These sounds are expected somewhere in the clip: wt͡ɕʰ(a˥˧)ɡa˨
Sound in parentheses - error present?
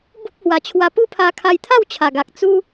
yes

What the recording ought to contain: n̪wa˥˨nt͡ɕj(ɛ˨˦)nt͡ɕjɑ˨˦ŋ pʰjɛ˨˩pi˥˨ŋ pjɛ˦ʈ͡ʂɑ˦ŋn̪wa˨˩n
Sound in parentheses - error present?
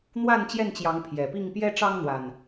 yes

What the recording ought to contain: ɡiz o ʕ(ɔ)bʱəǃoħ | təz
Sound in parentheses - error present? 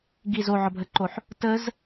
no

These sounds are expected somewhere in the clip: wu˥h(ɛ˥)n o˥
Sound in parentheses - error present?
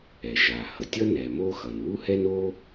no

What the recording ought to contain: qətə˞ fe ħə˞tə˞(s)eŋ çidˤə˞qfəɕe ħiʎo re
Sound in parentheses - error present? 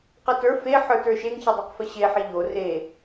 yes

